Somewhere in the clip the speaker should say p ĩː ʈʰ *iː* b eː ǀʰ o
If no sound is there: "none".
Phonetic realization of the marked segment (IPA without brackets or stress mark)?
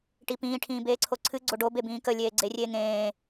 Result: ĩː